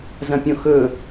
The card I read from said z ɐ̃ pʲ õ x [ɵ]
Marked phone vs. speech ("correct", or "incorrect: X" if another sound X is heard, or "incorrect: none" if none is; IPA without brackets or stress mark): correct